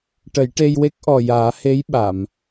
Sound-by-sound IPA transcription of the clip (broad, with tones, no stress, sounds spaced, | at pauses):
ʈ ə˨˩˦ j ʈ e˧ j w e˦˥ k̚ ʔ ɔ˨˩ j aː˨˩˦ h e˧˥ j ɓ a˨˩˨ m